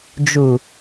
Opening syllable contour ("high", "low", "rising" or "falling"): low